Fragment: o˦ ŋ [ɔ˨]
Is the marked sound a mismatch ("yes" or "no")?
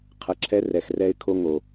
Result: yes